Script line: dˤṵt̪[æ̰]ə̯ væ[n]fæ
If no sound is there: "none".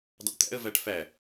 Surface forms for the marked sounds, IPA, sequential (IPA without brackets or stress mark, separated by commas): æ̰, ʈ